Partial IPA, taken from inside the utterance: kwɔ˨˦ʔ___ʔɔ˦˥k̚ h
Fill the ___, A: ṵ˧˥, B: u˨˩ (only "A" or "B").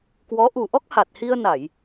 B